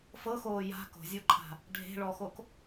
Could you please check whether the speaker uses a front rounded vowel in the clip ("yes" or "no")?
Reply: no